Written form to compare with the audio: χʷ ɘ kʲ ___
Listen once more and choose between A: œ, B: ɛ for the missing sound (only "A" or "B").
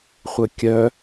A